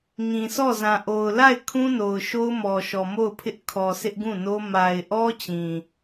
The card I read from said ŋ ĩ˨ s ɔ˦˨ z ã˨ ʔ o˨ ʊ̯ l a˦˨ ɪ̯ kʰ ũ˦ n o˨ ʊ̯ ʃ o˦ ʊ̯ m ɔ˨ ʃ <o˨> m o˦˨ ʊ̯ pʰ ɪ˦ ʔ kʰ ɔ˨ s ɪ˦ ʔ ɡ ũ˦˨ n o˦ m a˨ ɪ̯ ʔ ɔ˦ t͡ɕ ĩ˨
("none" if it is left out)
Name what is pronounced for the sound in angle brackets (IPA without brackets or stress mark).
ɔ˨